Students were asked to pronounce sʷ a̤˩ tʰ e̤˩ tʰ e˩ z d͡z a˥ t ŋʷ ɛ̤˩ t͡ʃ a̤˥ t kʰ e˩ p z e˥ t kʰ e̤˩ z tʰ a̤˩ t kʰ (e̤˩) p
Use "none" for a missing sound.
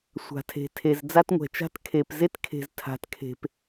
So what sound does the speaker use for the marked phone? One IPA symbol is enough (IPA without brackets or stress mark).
e̤˩